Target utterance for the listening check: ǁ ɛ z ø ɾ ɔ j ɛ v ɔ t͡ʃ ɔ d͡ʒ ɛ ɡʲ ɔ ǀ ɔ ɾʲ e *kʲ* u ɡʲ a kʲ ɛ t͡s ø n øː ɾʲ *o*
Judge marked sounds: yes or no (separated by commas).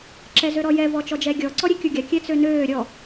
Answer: yes, no